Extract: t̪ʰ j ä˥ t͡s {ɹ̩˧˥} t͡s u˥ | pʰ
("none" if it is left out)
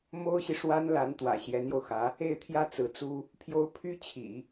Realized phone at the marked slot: ɹ̩˧˥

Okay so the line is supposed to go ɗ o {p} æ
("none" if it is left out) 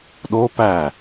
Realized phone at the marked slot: p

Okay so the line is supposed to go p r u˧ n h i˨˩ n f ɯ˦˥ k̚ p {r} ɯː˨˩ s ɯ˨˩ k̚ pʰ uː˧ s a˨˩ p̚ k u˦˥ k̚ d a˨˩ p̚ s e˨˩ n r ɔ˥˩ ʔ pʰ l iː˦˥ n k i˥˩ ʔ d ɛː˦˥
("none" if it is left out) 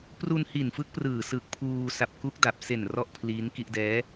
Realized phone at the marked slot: r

